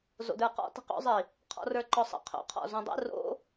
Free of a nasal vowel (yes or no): no